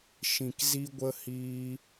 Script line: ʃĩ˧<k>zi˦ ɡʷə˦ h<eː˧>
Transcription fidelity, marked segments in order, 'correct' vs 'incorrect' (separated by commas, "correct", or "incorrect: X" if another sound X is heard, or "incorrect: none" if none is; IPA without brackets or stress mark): correct, incorrect: iː˧